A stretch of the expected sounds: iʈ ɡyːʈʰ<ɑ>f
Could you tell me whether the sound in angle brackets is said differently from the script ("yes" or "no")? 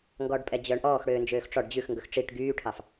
no